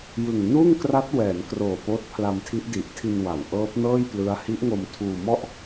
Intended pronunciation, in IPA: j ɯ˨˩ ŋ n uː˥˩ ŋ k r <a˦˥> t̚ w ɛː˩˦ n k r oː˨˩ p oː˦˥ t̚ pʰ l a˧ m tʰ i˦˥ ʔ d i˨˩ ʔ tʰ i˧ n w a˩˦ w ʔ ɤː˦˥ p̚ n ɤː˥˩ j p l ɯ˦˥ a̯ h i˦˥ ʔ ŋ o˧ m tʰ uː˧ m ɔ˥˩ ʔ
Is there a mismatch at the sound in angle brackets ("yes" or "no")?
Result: no